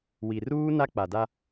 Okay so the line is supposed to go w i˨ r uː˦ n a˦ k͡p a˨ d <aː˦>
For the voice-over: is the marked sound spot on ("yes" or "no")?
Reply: no